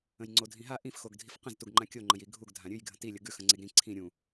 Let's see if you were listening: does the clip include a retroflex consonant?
no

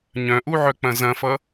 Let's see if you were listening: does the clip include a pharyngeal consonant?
yes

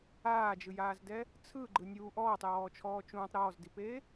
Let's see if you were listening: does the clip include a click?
yes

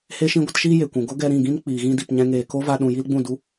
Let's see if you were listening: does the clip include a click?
no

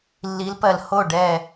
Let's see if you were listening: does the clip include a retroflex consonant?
yes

